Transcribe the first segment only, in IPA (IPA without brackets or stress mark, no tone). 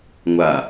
ŋʷ